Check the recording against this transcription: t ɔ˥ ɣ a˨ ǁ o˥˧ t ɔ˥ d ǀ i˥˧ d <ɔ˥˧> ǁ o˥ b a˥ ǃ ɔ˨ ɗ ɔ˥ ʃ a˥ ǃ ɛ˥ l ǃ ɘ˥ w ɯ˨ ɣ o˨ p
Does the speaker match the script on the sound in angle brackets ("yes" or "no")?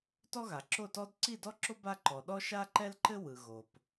no